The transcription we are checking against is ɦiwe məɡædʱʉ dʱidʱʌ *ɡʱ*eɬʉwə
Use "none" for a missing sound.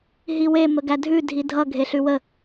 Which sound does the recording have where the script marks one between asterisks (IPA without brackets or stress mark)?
ɡʱ